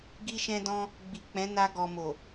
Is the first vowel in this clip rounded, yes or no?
no